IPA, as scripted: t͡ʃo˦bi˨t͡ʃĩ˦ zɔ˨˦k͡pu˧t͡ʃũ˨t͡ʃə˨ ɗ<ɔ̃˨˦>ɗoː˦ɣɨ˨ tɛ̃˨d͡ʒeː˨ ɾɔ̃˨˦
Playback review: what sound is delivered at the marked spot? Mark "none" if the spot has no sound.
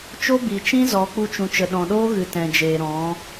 ɔ̃˨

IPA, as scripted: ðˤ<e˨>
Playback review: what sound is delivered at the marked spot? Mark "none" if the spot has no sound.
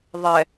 ɛ˨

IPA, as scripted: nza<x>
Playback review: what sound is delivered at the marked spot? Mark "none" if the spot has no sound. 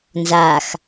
x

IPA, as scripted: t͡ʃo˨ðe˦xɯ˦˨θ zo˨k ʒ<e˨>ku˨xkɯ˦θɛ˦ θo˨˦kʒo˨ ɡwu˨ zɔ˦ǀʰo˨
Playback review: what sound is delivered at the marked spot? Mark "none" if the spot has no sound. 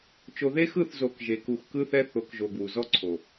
e˨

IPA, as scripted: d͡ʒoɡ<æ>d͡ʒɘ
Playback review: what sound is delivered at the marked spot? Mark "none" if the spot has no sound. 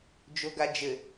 a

